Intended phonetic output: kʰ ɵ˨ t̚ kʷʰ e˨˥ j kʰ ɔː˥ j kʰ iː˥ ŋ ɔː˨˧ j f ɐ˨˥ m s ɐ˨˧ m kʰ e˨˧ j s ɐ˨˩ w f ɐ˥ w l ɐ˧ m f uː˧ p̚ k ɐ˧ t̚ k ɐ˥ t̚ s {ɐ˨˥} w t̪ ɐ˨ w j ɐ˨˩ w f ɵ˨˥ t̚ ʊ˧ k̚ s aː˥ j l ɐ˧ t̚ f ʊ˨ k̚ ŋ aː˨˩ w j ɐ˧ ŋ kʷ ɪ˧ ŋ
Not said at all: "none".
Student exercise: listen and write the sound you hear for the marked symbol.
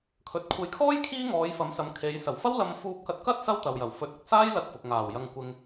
ɐ˥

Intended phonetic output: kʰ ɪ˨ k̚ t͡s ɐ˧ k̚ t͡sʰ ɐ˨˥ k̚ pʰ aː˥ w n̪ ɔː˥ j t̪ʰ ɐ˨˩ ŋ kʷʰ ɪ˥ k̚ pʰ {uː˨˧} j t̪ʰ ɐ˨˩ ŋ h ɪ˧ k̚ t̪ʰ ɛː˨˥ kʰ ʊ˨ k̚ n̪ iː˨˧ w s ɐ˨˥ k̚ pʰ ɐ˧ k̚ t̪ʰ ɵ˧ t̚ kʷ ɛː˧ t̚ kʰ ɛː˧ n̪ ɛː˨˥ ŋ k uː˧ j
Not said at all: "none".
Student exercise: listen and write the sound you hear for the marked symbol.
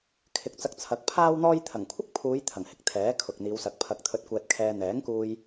uː˨˧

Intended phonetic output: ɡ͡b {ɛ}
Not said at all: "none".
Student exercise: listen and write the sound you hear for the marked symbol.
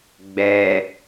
ɛ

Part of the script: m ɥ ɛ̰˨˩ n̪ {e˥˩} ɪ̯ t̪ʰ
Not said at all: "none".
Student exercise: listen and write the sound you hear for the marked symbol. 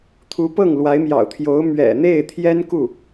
e˥˩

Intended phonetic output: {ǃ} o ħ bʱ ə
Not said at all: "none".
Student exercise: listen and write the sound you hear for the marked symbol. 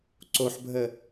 ǀ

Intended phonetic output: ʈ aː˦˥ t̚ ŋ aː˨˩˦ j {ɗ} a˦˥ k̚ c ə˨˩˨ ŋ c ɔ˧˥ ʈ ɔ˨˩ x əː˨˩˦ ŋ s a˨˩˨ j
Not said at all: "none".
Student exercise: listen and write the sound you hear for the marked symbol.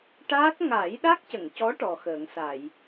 ɗ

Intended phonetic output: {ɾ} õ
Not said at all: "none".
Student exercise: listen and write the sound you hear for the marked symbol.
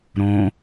ɾ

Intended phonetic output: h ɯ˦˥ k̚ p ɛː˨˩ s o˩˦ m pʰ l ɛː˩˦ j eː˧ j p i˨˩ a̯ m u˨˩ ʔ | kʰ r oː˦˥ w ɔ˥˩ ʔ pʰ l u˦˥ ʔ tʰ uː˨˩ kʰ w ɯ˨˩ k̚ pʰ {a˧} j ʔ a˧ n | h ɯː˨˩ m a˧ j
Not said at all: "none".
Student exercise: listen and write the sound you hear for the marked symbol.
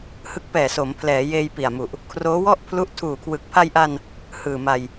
a˧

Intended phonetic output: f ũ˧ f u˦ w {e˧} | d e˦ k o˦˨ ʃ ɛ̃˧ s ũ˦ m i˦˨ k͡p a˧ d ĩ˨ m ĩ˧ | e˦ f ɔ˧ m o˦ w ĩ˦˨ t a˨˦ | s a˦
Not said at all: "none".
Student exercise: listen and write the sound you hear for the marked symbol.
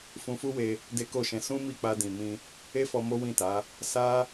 e˧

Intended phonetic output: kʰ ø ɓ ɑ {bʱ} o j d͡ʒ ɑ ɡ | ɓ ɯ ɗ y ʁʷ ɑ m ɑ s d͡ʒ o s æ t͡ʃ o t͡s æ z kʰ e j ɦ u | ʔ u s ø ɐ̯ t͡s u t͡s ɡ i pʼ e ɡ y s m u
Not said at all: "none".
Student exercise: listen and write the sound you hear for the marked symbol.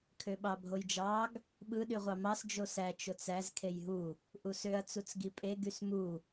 bʱ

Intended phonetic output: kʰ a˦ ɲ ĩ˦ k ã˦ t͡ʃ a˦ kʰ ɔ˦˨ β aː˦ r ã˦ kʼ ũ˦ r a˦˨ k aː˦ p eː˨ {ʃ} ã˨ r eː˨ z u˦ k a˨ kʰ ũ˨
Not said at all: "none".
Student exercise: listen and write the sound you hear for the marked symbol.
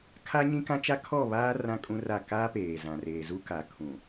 z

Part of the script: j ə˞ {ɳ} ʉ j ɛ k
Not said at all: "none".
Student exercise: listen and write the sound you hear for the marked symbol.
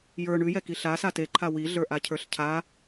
ɳ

